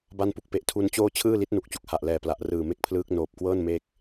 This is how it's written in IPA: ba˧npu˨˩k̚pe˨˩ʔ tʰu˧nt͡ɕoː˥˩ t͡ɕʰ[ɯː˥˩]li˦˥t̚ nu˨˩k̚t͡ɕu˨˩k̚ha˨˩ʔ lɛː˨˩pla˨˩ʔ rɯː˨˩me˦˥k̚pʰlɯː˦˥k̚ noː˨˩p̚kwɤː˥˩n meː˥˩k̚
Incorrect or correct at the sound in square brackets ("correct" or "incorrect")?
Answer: correct